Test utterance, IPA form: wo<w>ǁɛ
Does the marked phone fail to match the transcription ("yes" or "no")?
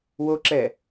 yes